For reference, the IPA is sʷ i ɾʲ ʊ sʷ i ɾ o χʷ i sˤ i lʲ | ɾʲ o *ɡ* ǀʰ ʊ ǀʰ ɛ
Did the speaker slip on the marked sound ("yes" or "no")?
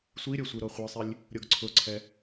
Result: no